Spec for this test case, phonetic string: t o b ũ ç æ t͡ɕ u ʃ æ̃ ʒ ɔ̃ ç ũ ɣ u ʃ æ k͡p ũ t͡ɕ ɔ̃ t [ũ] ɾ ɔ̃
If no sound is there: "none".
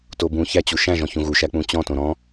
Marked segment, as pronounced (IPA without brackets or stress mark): õ